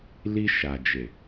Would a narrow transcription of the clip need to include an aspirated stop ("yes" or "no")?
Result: no